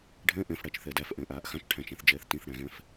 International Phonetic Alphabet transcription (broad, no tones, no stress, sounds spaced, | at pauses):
ɖʱ ɛ̃ ʔ ɛ̃ f ɽ æ t͡ʃ θ ɛ d æ f ʔ ɛ̃ ʔ aː ʔ x ã t͡ʃ ʈʰ æ̃ t͡ʃ æ̃ θ d͡ʒ ɛː θ t ĩ θ ɽ æ̃ ɣ ɛ̃ f